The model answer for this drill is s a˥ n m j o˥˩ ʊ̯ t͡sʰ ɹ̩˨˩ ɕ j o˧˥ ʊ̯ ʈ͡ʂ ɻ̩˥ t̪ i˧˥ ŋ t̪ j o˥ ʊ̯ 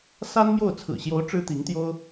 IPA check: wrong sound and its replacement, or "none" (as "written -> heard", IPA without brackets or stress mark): none